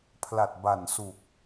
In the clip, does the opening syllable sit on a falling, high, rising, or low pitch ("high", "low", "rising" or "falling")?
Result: low